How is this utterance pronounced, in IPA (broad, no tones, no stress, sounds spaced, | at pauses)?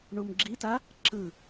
ɳ u m ɡ͡ǁ i t a | ǁ ɯ